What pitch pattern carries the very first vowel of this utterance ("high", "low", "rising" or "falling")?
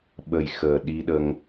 low